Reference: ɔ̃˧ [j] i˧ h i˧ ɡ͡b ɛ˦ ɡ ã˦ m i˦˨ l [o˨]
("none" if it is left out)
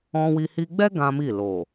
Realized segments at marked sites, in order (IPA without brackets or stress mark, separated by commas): w, o˨